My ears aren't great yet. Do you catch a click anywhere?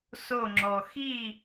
yes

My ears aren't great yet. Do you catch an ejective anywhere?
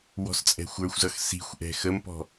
yes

